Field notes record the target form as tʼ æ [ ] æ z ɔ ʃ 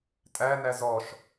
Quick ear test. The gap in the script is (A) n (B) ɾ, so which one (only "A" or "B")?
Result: A